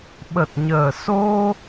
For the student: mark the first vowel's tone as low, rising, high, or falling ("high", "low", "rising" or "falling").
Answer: low